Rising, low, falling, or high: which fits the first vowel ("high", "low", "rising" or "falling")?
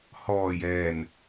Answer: low